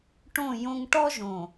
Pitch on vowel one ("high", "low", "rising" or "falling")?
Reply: falling